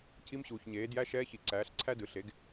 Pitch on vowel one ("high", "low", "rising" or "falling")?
rising